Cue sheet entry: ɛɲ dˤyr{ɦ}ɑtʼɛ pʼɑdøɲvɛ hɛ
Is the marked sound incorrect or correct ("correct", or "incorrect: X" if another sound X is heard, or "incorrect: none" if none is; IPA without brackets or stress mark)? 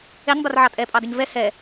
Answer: incorrect: ʕ